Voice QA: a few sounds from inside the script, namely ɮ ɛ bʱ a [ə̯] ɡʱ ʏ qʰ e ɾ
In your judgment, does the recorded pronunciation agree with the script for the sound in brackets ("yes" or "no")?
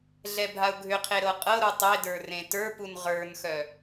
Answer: no